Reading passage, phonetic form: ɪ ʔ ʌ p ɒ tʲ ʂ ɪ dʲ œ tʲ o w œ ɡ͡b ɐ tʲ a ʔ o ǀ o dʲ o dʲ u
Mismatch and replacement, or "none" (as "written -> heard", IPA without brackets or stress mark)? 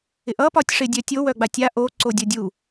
ɐ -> a